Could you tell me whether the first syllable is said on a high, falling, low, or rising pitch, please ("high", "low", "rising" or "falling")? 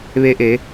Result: rising